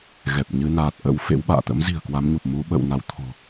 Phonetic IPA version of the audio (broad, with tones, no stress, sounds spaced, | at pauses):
ɣ ɛ˨˩ p̚ ɲ ɨ˧ n aː˨˩ t̚ ʔ ə̰˧˥ w f ḛ˧˥ w ɓ a̰ː˧˨ t̪ ə̰˧˥ m z i̤˨˩ ə̯ k w a˨˦ m ɲ u˨˩ p̚ m u˨˦ ɓ ə̰˧˨ w n a˨˦ w t̪ʰ o̤˨˩